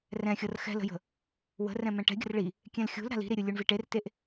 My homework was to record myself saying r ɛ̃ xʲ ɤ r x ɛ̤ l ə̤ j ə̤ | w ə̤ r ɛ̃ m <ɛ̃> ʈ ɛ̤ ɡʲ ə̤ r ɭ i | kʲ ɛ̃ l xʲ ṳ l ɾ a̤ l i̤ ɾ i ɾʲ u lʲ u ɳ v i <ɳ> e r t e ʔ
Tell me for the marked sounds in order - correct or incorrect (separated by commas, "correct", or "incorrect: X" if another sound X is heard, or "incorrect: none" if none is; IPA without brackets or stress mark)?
correct, incorrect: ʈ